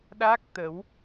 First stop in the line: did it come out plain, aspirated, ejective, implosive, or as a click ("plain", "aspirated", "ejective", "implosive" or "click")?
implosive